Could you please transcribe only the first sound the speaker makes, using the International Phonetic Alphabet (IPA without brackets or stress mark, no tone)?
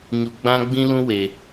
ɲ